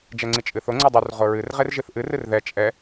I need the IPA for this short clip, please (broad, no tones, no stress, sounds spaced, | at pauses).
d͡ʒ ɛ ŋ͡ǀ i t͡ʃʼ ɨ θ o ŋ͡ǀ ɨ dˤ u r ʁ o ɹ ɨ r ʁ e r ʒ ɨ θ ʔ ɨ r ɨ r ð ɛ t͡ʃʼ ɛ